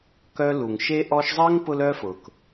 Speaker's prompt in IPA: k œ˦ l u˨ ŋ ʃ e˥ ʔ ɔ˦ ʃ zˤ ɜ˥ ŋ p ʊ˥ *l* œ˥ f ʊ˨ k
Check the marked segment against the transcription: correct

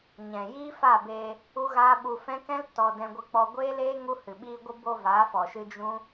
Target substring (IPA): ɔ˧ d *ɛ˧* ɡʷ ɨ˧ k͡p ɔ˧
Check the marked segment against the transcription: incorrect: ɛ̃˧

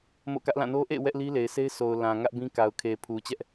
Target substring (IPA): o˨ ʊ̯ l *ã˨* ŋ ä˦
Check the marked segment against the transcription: correct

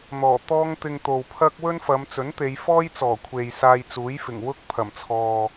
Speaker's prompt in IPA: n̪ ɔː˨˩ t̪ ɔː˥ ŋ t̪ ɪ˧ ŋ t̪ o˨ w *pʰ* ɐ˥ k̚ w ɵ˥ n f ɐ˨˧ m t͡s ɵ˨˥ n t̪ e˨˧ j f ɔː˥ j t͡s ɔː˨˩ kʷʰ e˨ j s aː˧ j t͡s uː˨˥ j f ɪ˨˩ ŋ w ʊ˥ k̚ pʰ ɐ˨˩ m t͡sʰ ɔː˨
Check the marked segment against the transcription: correct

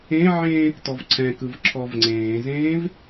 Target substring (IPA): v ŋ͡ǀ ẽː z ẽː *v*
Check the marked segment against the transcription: correct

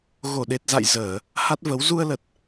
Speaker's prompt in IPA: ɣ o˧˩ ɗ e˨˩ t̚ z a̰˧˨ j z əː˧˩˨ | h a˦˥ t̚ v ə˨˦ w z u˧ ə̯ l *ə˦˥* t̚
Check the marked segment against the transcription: incorrect: ə˨˩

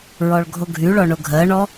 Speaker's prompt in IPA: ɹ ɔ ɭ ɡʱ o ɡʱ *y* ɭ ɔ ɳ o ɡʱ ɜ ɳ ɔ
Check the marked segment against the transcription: correct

